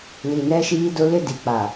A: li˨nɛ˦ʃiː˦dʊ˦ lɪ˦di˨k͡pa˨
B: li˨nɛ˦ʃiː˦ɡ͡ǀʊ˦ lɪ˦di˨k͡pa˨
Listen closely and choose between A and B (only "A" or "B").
A